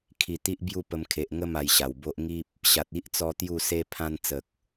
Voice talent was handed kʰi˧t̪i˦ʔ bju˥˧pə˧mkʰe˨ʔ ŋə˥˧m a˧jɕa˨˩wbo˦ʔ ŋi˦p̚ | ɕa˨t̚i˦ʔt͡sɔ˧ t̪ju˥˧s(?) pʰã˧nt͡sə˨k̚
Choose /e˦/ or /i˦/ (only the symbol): e˦